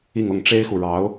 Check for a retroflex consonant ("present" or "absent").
present